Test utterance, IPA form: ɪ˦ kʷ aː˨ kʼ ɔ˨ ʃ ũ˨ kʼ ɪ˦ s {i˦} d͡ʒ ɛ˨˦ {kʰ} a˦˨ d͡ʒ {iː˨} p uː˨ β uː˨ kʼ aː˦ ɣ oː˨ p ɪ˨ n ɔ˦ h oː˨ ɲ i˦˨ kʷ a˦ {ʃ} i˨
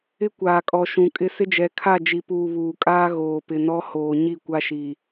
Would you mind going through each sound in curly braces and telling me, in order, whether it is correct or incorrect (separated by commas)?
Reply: incorrect, correct, incorrect, correct